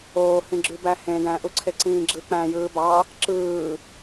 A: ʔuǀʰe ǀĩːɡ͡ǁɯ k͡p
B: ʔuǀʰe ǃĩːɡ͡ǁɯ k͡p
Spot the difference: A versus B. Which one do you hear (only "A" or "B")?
A